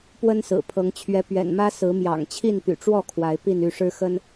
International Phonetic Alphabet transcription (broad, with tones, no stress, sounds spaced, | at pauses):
p w ə˦ n s ɹ̩˨˩ pʰ ɤ˨˦ ŋ t͡ɕʰ ɥ ɛ˨˦ p ɥ ɛ̰˨˩ n m ä˦ s ɹ̩˨˦ m j ɑ̰˨˩ ŋ t͡ɕʰ i˥˨ n p y̰˨˩ ʈ͡ʂ w ɔ˥˨ kʰ w a˨˦ ɪ̯ p i˥˨ n y˥˨ ʂ ɻ̩˦ x ə˦ n